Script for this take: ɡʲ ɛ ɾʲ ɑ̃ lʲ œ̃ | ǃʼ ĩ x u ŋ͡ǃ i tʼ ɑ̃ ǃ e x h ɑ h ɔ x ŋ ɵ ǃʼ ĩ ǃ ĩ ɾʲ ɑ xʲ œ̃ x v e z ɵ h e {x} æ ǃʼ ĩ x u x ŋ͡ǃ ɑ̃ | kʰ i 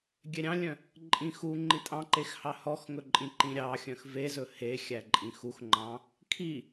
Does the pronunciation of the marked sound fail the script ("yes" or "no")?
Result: yes